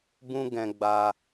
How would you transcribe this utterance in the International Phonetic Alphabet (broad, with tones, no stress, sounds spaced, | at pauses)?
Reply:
b ũ˦ ɡ ɛ̃˧ ɡ͡b a˧